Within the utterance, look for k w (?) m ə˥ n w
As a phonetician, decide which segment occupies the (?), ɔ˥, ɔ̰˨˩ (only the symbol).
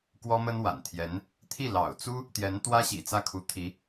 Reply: ɔ˥